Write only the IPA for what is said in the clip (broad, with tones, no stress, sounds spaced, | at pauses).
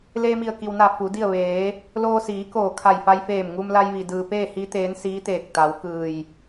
l eː˧ m i˧˩ ə̯ k i˩ w n a˧˩ f u˩˧ d i˥˨ ə̯ ʋ eː˩˧ | l oː˧ s iː˩˧ k oː˧˩ kʰ a˧˩ j f a˧ j f eː˧˩ m ŋ u˧ m l a˧ j ʋ i˩ d ɯː˩ p eː˥˨ h i˧˥ t̪ eː˧˥ n s iː˧˥ t̪ eː˧˩ k̚ t̪ a˩˧ w k ɯː˧˩ j